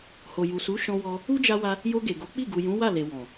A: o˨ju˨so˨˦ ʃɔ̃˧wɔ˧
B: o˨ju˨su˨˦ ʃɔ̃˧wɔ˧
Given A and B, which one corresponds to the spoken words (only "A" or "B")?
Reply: B